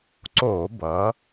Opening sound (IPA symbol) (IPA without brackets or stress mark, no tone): ǀ